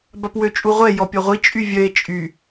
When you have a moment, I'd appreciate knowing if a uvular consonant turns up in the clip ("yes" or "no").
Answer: yes